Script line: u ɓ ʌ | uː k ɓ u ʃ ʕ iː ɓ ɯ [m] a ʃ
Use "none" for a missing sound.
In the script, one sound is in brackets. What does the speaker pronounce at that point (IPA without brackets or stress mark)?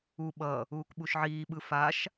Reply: f